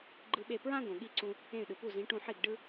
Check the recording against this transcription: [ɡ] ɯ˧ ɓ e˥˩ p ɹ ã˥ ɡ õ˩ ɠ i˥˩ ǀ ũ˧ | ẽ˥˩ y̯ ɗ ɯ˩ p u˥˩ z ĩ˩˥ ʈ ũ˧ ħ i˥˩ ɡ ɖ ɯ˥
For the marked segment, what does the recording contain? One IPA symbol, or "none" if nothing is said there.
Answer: ɡ͡ǃ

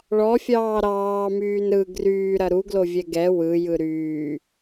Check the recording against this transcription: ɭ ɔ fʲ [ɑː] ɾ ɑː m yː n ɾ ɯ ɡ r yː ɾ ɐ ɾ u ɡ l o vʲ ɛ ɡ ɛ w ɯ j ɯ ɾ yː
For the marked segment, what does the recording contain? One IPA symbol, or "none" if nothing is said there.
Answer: ɑː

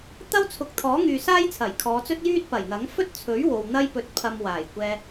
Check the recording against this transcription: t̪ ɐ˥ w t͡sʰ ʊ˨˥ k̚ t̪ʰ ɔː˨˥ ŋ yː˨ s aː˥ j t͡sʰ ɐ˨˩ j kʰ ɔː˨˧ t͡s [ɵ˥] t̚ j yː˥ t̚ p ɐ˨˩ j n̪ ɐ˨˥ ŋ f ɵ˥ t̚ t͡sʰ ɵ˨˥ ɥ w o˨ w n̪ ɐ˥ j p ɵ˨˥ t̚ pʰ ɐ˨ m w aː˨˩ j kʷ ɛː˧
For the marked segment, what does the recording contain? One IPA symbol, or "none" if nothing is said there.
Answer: ɵ˥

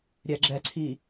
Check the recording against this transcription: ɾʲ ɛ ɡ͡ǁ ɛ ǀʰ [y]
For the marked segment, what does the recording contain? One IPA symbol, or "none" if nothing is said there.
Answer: i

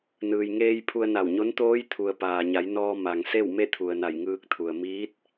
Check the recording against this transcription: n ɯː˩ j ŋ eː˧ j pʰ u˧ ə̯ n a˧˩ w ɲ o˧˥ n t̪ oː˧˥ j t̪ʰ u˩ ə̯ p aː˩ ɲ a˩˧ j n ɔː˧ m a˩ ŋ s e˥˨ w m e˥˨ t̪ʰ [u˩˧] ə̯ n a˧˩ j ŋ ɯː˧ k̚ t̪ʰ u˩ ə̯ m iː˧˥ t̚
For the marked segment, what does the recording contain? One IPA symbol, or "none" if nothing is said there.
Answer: u˩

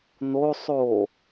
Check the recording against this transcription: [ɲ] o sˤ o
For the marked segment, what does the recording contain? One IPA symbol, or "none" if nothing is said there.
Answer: n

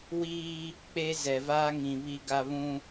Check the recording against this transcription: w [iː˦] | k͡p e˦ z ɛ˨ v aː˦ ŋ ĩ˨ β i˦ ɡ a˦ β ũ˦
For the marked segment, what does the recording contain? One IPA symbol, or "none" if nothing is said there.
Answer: iː˦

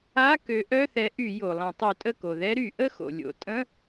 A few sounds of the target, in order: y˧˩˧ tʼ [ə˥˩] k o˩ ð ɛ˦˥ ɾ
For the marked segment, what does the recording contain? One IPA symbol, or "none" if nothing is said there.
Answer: ə˥˩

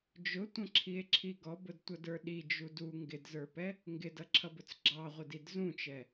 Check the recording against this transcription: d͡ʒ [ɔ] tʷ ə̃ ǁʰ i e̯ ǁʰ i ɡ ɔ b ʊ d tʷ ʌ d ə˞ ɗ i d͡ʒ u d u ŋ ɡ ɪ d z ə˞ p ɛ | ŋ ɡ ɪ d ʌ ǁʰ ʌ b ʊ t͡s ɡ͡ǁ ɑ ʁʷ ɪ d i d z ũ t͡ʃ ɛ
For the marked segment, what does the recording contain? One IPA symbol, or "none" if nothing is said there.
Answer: ʊ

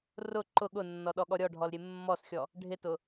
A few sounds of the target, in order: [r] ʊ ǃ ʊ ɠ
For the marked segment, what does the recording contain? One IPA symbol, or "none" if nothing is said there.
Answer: r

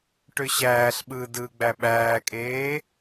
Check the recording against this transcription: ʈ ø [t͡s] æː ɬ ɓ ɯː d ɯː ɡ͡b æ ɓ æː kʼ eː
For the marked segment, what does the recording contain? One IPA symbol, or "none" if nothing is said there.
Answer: ɕ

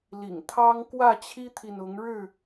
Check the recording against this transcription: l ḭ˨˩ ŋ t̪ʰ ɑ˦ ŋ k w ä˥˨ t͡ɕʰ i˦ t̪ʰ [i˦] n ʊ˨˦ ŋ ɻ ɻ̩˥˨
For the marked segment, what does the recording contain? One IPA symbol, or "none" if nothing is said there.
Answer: i˨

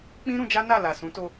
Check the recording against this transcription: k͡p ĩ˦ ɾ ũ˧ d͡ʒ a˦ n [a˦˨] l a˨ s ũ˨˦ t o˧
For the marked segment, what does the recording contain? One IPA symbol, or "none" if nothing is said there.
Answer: a˦˨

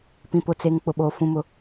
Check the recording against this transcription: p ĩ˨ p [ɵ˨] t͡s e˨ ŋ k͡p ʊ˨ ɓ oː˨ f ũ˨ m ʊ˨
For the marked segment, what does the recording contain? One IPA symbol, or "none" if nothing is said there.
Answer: ʊ˨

